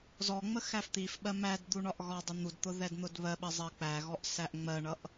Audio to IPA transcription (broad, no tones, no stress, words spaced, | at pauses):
zɔŋ͡mə xæft̪ifɓɜ mæd d̪uɳɒʔɣɒdˤɪ n̪udt̪ʊ ðɛdn̪ʊdβɜɓɜ zˤɜk͡pæɣɔʔ sæʔŋ͡mɜɳʌʔ